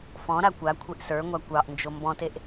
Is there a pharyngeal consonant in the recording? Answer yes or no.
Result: no